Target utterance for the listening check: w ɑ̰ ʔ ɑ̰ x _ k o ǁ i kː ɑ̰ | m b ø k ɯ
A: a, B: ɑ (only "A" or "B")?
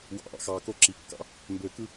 B